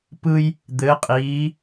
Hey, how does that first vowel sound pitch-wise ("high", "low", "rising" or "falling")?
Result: high